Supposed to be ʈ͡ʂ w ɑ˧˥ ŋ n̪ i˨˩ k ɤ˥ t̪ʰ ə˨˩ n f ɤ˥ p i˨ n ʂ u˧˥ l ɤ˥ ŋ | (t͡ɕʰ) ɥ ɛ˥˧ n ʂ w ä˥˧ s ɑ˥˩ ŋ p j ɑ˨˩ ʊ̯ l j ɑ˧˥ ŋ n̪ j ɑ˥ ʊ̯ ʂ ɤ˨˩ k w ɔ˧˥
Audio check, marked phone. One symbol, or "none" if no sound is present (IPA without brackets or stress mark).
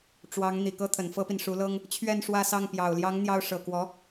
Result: t͡ɕʰ